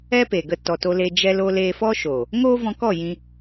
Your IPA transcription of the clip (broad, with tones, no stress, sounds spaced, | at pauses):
ɛ˦ p e˨ ɡ ə˧ t ɔ˨ t o˧ l e˧ d͡ʒ ɛ˧ l o˧ l eː˧ f ɔ˦ ʃ oː˨ | ŋ oː˦ v ɔ̃˧ k ɔ˦˨ j ĩ˧